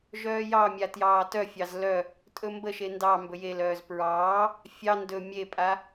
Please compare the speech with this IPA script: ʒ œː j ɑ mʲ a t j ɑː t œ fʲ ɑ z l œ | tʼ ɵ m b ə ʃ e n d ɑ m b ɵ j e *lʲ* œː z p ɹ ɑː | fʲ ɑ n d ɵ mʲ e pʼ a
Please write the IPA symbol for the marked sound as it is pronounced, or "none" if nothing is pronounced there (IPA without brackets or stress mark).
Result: l